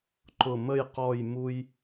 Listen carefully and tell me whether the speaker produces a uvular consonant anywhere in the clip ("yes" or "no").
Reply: yes